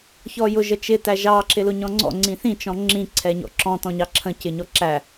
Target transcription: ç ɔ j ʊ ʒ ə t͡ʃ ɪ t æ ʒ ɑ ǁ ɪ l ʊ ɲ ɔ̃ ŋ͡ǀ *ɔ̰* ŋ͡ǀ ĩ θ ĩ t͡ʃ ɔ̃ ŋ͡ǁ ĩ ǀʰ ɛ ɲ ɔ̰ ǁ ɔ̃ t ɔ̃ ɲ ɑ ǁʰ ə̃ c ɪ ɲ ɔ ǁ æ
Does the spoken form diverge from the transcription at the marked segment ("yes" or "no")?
no